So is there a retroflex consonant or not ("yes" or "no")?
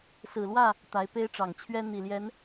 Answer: yes